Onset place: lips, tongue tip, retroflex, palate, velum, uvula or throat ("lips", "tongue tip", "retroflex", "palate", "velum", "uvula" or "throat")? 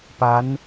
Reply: lips